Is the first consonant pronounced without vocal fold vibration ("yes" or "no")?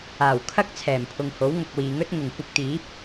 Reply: no